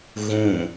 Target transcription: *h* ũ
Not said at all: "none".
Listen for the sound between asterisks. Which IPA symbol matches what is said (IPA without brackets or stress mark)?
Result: ɣ